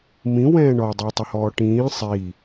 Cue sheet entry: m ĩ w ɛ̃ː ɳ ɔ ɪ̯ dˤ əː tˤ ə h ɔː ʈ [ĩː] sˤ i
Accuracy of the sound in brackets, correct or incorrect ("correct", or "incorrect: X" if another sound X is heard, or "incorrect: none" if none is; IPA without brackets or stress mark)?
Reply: correct